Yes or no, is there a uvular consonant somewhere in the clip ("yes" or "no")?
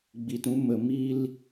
no